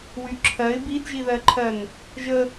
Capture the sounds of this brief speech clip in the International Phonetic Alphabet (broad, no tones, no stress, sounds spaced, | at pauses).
w y ǁʰ ɜ ɪ̯ b i d ʒ i ð ɜ ǃʰ ɜ n | ʒ ə